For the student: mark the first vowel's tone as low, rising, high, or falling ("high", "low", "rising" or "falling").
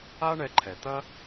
high